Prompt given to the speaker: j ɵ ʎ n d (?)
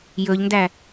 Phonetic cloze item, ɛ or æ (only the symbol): æ